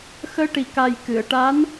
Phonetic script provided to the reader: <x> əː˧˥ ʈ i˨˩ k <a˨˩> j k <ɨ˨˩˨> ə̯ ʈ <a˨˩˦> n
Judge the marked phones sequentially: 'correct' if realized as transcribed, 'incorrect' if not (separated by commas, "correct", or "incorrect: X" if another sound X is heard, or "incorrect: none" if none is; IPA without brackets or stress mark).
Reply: correct, correct, correct, incorrect: a˧˥